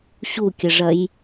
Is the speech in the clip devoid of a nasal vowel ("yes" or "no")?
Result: yes